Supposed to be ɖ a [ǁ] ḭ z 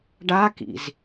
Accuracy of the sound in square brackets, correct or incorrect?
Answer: incorrect